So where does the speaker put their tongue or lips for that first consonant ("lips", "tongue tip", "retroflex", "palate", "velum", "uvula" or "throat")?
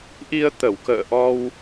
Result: throat